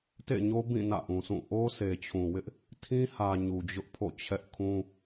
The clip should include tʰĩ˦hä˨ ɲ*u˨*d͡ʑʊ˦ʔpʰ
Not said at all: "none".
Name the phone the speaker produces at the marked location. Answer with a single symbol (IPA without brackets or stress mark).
u˨